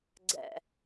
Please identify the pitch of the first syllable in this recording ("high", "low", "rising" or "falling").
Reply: low